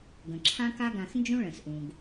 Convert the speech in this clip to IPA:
ɡ ə̃˩ ǁʰ ã˥ k a˥ ɡ ã˧ x n d͡ʒ ũ˥ ɭ ə̃˩ s ʔ ũ˩ ɡ

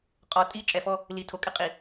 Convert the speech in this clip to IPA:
qʼ ɔ˨ tʼ i˦ t͡ʃʼ ɛ˨ f ɔ˦ | l i˨ tʰ o˨ kʼ ɪ˦ qʼ i˨

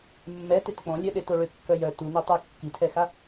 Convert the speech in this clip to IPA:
mː ɛ t e t k͡p ɔ̃ lʲ œ ɗ e t o ɭ ø kː œ j œ t u n ø tˤ ø kː i tʰ ɛ x a

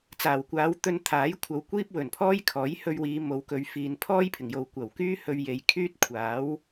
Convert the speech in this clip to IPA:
t͡s aː˨˩ w kʷ aː˨˧ w t̪ ɵ˧ n t̪ʰ aː˨˥ j kʷʰ ɐ˨˧ w kʷ iː˥ p̚ w ɵ˨˩ n pʰ ɔː˥ j kʰ ɔː˨˥ j h ɵ˧ ɥ w iː˨˧ m o˨˧ w k ɵ˨˧ ɥ f iː˨ n pʰ ɔː˥ j pʰ ɪ˨˩ ŋ j o˨ w kʷ ɐ˨˩ w k yː˥ h ɵ˧ ɥ j e˨ j kʰ yː˥ t̚ kʷʰ aː˨˥ w

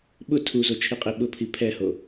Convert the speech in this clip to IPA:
ɓ ʊ tʰ u z o t͡ʃʰ i qʼ ɪ ɓ ʊ pʰ i pʰ ɛ h o

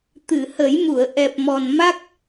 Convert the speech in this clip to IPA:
t̪ ɨ˨˩˨ h ə˨˩˦ j m u˨˩˨ ə̯ ʔ ɛ˨˩ p̚ m ɔ˨˩ n m a˦˥ k̚

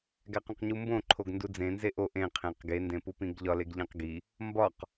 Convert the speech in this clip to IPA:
ɡ æ q õ q ɲ u m b õ ǃʰ o ɡ n d u d͡z ẽ n z e ʔ o ʔ ẽ qʰ ẽ q ɡ e n d ẽ p u p ĩ ɡ ʎ ɒ l e ɡ ʎ ẽ q ɡ i | m b ɒ q

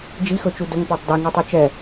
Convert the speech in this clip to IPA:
d͡ʒ i x ɵ t͡ʃ u d ɵ ŋ p o tˤ d ɛ ŋ u tˤ u t͡ʃ ɛ

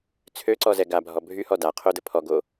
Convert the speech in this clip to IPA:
t͡sʰ ø ǀ ɔ z ɛ ɡ a bʱ ɔ bʱ y h ɔ d a qʰ o d ə pʰ ɔ ɡ o

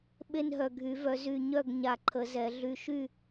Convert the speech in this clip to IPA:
ɓ e˥˨ n ɦ œ˧˩ ɡʱ y˨˩˦ v œ˨˩˦ z y˧˩ ɲ œ˥˨ ɡ ɲ a˧˩ ǃʰ ə˨˩˦ z ɛ˨˩˦ ɮ y˧˩ ʃ y˥˨

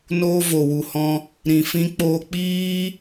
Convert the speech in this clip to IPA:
n oː˦ v o˨ w u˨ h ɔ̃˧ | ɾ ĩ˨ f ĩ˦ k͡p oː˧ k͡p iː˦

